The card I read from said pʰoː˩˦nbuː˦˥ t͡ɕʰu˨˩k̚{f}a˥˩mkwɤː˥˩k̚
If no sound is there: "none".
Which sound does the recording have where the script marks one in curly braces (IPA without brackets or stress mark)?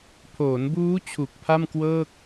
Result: pʰ